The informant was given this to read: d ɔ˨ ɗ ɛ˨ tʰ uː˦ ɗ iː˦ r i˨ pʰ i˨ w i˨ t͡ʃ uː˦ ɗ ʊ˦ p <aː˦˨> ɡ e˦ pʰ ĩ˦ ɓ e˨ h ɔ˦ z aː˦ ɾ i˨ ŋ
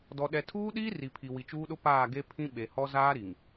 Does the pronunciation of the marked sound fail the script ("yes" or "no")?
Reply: no